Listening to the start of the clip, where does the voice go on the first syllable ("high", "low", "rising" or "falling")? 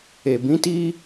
low